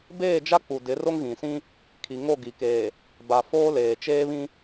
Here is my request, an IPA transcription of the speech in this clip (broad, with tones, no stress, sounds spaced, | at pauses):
b eː˦˨ d͡ʒ a˦ k͡p u˨ d ɪ˨˦ r o˦ ŋ ɣ ĩ˨ s ĩ˦ | kʰ i˨ ŋ o˦˨ ɡ i˨ k eː˨ | b a˨ f oː˦ l eː˨ t͡ʃ eː˦ β ĩ˦